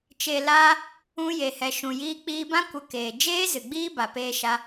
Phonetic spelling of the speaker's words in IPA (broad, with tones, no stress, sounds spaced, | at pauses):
t͡ʃ e˨ l aː˧ | ũ˧ j e˨ h ɛ˨ ʃ ũ˨ j iː˧ k͡p iː˧ b ã˦ kʷ ə˧ k eː˨ d͡ʒ eː˦ z ɨ˨ ɡ͡b iː˦ b a˨ p eː˧ ʃ a˧